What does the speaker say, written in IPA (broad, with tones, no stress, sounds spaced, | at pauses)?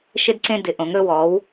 ʃ ɪ˧ d ǀ ẽ˧ d ɪ˩˧ ʔ õ˩˧ ŋ ɾ ɵ˧ w ɔː˩˧ w